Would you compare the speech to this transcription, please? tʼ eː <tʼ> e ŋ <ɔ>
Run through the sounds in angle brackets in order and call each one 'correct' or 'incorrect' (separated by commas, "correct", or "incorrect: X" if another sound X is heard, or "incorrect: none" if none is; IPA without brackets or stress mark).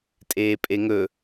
incorrect: pʼ, incorrect: ɵ